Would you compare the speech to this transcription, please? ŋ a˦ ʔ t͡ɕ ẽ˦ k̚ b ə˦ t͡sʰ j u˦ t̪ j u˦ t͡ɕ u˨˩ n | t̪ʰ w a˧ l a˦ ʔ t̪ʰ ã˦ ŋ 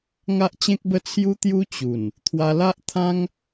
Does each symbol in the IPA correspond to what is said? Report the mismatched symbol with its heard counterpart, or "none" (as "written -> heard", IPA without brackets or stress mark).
none